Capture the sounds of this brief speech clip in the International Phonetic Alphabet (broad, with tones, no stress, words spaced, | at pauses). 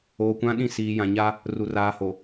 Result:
oː˨kʷã˦ɗĩ˦˨ siː˨jã˨ɲa˦ | ru˨ raː˨ho˨